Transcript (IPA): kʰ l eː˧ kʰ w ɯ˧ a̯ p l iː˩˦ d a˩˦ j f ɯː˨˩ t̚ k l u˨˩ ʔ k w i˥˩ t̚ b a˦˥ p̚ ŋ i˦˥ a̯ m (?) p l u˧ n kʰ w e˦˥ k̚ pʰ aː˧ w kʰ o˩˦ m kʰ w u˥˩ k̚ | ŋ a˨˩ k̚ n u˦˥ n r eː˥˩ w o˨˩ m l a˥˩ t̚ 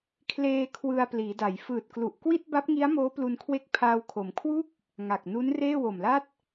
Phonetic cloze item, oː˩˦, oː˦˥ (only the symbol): oː˦˥